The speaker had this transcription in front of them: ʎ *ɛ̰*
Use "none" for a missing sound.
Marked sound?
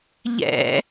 ɛ̰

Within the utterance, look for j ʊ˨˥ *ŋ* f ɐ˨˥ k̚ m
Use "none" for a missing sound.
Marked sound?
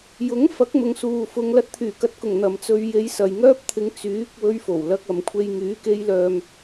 ŋ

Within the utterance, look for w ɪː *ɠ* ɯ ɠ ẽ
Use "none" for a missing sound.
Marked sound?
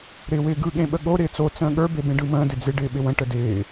ɡ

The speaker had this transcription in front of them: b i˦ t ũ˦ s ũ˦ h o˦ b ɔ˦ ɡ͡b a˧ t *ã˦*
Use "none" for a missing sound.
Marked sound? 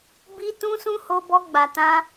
ã˦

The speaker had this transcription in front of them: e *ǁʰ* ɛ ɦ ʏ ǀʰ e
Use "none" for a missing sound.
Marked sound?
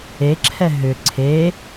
ǁʰ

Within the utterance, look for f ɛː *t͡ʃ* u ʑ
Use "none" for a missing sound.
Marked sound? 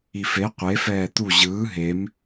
t̪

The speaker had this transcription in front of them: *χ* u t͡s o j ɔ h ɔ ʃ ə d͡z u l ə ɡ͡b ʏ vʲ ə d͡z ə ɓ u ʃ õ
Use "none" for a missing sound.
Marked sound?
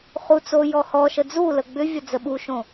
χ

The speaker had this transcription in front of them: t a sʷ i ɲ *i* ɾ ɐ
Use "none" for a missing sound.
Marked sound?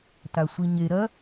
e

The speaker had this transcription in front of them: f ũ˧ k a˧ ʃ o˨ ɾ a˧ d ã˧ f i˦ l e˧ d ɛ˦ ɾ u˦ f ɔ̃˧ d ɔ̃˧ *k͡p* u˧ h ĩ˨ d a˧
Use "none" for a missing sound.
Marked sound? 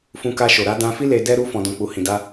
k͡p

